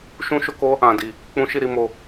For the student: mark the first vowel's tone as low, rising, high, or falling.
high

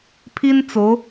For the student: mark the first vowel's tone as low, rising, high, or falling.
high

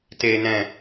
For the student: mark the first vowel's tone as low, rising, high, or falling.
low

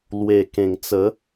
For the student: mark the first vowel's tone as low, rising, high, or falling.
low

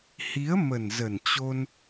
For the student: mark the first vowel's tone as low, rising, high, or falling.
rising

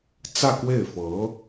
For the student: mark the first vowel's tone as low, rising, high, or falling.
falling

